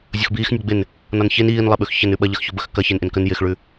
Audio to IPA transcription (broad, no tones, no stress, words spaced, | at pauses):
zʲoxbiːxnʲɒ ɡ͡bɪn | nɒnçen iːnlˠɪɓʉx çɐn ʉɓɐʎɐxço bəxkɐ çenʔɪnkən jɪxɭʉ